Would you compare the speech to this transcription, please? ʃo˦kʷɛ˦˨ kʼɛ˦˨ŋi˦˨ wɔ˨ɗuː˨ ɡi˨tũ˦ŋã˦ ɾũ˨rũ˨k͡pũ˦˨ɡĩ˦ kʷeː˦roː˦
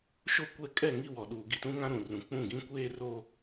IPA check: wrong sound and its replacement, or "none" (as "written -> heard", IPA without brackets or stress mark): none